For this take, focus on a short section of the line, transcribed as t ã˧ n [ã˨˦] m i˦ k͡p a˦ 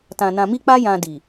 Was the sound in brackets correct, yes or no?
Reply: no